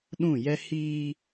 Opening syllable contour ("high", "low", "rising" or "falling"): falling